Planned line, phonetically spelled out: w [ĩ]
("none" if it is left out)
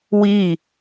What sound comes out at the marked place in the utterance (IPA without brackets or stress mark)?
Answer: i